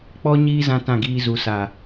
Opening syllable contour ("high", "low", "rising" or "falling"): high